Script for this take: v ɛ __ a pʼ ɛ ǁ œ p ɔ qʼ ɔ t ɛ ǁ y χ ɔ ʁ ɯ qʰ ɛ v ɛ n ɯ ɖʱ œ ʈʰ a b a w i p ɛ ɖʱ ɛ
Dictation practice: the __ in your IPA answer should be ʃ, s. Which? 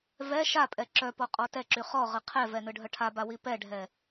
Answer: ʃ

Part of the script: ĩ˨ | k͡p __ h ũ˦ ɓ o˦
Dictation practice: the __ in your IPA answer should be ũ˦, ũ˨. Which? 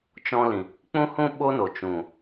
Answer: ũ˦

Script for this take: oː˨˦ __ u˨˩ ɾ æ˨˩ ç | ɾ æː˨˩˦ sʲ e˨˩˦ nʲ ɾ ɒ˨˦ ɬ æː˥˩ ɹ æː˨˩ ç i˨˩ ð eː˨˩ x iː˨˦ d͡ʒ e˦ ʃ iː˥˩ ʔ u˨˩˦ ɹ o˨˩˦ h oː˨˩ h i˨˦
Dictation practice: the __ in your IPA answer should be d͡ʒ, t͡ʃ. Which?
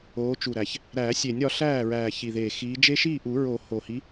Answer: t͡ʃ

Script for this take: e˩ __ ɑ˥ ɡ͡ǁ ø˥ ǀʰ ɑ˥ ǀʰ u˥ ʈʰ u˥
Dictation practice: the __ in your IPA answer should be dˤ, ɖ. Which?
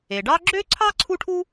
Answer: ɖ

